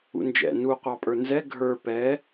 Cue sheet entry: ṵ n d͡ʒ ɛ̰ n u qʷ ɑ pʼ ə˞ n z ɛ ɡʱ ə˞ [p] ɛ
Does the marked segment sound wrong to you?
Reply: no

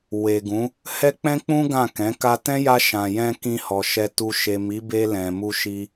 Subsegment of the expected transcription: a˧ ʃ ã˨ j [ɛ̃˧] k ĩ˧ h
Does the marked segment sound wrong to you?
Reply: no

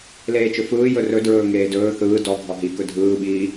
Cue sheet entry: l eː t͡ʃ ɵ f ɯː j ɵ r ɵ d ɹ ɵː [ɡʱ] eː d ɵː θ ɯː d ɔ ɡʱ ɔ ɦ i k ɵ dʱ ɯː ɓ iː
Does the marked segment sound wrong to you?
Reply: yes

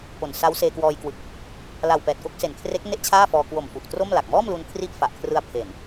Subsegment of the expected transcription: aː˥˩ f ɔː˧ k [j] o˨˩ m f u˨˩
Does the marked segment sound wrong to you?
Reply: yes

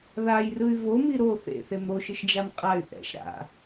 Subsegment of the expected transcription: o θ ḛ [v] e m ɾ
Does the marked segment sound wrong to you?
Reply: yes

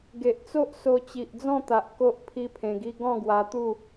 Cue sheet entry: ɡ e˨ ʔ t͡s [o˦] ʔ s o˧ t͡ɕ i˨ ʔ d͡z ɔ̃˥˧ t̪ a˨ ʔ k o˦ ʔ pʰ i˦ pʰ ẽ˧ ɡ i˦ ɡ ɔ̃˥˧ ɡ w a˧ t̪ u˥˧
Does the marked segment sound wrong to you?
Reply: no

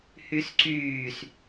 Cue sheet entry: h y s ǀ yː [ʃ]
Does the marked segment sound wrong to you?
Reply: yes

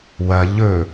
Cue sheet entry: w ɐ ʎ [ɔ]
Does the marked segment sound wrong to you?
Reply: yes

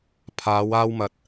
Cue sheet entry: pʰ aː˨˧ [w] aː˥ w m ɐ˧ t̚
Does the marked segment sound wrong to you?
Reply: no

